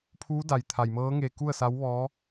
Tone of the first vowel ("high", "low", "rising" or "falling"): rising